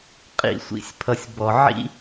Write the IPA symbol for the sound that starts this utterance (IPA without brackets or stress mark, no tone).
qʼ